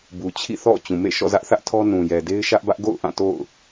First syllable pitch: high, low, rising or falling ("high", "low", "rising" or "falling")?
low